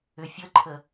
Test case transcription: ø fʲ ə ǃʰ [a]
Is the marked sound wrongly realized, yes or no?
yes